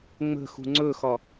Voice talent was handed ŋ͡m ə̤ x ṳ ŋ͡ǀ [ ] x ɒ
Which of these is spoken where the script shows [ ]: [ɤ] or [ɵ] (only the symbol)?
ɵ